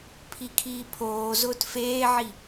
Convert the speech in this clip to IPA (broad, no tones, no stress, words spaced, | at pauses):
pʰikʰiːpʰoː zʊːtfeːʕi